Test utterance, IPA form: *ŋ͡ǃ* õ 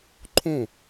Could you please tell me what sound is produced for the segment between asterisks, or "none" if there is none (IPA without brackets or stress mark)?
ǃʰ